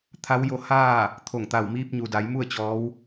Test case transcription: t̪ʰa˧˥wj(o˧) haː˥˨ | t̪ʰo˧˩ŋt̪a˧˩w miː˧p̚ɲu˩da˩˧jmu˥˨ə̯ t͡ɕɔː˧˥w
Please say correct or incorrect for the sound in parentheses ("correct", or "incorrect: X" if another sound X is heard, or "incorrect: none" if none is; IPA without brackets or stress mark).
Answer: correct